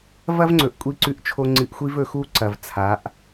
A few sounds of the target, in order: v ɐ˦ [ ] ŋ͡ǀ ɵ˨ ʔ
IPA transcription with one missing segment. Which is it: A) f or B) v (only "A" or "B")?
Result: B